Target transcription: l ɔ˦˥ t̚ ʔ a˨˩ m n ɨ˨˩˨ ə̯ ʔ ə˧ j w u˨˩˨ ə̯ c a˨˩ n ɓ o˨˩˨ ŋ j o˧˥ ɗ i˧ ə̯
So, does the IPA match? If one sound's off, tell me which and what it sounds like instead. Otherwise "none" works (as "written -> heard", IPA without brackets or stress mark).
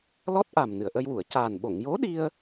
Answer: none